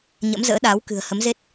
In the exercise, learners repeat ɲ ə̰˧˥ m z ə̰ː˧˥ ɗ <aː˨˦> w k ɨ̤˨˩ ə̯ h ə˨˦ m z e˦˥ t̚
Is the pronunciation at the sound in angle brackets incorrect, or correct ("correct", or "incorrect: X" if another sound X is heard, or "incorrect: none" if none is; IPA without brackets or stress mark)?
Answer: correct